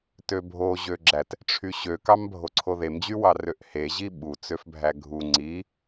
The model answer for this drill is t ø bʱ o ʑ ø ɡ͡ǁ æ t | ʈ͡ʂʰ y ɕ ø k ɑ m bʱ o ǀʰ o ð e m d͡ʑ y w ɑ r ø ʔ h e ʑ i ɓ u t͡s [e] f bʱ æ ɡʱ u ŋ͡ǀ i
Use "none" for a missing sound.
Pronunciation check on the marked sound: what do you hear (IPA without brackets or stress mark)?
ø